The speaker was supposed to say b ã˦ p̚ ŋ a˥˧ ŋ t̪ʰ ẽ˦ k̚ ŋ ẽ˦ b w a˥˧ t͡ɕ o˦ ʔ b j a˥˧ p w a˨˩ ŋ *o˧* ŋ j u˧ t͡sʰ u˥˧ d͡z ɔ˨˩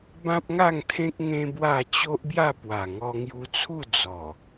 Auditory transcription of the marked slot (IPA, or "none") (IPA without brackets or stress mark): ɔ˧